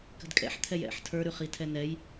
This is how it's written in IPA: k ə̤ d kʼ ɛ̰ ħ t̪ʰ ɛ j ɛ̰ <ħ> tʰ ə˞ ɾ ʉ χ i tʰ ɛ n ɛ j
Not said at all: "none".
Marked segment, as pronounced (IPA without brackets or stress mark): ħ